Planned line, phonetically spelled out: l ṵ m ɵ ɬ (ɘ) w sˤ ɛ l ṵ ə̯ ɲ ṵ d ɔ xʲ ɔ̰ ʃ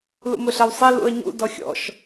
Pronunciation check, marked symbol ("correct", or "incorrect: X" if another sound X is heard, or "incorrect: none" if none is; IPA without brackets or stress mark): incorrect: ɛ